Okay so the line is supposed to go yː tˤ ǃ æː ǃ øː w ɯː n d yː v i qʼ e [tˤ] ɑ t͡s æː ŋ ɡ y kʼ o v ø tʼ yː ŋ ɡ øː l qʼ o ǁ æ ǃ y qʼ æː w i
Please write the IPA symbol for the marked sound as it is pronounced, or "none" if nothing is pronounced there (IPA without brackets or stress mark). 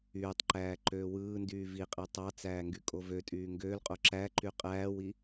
tˤ